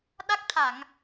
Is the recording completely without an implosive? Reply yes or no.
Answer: no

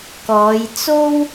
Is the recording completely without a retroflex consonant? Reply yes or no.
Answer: yes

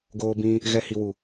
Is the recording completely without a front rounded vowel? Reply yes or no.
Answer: yes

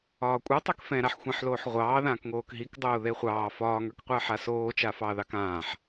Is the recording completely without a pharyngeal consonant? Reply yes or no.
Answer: no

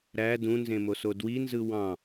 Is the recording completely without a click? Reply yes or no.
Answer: yes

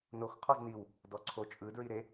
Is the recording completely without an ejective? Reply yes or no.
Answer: no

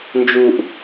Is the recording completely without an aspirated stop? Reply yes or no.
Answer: yes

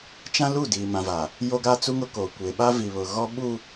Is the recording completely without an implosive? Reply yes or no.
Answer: no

